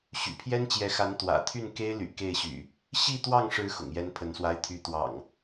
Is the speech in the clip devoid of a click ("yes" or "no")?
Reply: yes